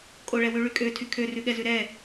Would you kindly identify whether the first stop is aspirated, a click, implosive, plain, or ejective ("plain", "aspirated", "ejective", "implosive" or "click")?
ejective